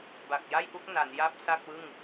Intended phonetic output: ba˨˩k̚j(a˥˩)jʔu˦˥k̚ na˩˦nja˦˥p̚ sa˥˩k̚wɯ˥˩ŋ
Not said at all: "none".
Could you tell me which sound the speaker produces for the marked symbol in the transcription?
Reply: a˥˩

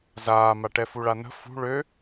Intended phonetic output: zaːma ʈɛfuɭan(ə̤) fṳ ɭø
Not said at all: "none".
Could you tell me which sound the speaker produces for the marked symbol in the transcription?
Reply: ə̤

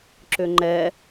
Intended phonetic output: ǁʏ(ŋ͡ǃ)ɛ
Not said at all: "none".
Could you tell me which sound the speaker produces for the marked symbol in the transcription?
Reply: ŋ͡ǃ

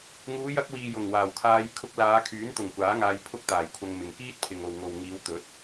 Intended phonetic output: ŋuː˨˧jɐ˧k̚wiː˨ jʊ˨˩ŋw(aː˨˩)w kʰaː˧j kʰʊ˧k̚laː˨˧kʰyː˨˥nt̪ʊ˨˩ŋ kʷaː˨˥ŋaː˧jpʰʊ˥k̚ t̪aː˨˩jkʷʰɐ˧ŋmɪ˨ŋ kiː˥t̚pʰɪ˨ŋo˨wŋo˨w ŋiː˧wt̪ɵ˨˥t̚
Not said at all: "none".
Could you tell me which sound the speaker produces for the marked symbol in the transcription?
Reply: aː˨˩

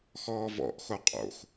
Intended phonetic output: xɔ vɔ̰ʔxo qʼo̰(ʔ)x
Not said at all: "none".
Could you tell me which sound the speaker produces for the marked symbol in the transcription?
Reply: none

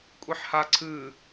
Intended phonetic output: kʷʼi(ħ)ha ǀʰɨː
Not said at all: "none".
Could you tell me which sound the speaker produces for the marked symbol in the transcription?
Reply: ħ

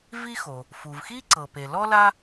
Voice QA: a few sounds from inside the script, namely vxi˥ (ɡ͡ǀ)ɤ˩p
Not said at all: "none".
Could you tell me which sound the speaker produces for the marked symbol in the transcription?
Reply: ǀ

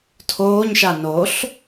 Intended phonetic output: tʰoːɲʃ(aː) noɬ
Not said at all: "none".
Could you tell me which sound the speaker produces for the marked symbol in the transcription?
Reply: a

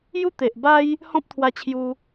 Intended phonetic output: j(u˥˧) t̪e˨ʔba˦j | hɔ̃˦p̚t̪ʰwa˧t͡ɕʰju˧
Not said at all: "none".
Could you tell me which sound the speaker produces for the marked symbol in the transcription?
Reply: u˦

